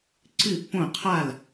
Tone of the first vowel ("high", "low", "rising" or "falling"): falling